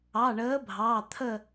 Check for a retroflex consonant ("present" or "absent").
present